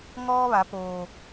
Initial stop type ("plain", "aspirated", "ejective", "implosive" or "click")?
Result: plain